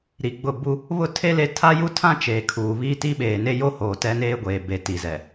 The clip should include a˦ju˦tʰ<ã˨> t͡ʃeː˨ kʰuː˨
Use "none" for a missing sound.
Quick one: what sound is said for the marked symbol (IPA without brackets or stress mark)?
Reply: ã˦